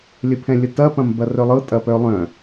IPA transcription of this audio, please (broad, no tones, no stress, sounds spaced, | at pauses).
lʲ ə pʰ ɛ̃ lʲ ə t ɐ p ɐ̃ m b ɐ r œ lˠ ɤ tʼ ɐ p œ lˠ œ̃